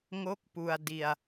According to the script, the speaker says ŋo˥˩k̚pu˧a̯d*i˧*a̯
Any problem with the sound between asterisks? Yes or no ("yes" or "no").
no